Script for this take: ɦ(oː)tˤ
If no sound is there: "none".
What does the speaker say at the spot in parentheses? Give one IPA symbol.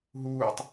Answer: uː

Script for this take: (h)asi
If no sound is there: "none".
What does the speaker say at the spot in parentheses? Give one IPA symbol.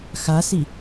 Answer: x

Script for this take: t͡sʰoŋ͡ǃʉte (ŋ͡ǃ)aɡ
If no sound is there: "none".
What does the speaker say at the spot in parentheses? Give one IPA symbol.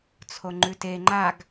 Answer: ŋ͡ǃ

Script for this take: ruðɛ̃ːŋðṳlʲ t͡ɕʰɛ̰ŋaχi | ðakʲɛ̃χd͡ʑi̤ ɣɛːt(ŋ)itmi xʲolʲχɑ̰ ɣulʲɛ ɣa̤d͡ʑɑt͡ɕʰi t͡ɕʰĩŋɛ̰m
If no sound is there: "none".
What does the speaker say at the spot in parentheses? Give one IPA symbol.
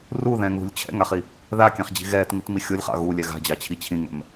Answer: ŋ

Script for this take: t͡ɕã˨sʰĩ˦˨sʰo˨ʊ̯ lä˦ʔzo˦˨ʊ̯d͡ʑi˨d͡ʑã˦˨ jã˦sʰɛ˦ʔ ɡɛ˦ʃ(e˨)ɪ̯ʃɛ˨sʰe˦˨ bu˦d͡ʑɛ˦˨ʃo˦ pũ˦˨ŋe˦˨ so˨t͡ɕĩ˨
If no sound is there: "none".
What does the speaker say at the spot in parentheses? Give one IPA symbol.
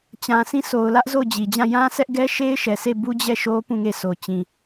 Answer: e˦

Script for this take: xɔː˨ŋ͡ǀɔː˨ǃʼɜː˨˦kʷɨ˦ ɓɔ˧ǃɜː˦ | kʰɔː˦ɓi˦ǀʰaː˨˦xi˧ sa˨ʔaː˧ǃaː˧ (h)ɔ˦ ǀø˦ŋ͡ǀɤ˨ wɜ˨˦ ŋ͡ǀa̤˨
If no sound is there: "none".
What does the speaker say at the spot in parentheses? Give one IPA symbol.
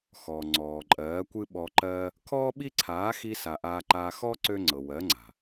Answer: x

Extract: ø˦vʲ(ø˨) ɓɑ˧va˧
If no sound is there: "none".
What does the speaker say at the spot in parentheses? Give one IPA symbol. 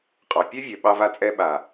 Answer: ø˨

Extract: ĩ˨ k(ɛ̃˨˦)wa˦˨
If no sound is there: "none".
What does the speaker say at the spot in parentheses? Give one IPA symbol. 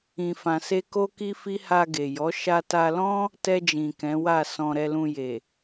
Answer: ɛ̃˨˦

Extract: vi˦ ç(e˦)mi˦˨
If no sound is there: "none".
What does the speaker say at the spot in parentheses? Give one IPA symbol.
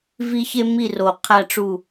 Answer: e˦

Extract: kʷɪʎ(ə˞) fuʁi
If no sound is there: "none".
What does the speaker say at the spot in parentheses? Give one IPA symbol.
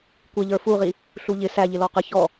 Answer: ə˞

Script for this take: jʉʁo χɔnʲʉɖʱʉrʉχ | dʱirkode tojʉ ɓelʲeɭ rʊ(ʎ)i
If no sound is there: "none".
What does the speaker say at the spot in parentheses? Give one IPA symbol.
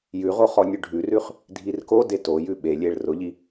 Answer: ʎ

